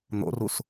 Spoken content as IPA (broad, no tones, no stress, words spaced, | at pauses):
n̪o̰rus